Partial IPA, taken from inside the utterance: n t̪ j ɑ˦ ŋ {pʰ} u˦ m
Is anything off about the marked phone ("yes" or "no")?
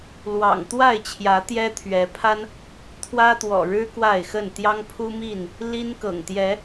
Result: no